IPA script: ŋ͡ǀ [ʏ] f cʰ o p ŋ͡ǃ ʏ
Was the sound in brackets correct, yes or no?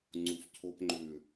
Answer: no